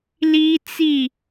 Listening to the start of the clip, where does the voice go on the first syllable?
high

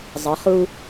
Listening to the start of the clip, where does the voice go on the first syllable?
rising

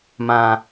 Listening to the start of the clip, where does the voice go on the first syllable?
low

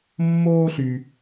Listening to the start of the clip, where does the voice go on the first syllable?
high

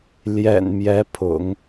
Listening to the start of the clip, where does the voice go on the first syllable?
low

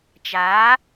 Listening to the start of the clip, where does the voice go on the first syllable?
rising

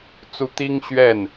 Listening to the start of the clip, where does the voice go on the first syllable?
rising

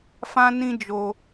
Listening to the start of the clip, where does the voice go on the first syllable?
high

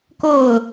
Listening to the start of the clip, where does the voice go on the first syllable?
falling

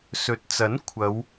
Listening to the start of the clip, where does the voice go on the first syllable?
rising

